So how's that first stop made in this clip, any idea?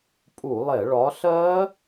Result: ejective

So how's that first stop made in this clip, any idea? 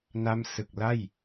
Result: plain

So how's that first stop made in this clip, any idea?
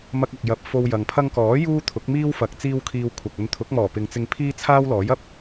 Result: plain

